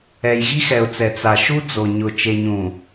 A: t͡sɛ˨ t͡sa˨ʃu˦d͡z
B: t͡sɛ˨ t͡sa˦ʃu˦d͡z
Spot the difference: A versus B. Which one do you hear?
A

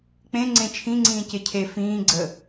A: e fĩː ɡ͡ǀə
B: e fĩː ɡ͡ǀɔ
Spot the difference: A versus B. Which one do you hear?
A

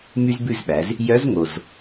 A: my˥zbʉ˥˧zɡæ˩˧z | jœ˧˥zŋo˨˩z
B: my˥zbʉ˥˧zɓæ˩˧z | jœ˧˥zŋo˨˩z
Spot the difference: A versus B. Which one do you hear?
B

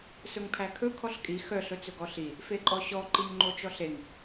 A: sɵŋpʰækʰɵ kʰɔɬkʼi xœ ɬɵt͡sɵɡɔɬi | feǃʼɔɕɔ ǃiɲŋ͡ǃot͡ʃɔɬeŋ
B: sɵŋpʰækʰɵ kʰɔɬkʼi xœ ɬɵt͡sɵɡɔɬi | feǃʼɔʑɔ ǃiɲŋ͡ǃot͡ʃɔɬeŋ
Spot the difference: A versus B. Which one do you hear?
A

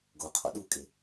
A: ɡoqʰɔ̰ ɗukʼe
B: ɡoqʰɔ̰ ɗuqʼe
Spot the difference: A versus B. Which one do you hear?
A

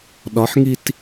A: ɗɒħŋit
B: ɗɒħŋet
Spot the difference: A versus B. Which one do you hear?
A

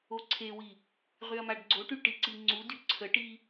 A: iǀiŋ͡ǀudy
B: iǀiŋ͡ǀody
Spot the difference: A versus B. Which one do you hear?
A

